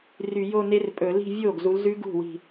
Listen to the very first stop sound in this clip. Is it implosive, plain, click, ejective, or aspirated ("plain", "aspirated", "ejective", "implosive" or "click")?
ejective